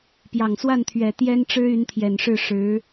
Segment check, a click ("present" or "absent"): absent